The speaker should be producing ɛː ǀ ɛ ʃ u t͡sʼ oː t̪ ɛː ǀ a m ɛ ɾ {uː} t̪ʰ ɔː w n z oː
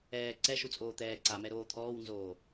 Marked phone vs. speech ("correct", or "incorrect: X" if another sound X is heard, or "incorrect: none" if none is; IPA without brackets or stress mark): incorrect: oː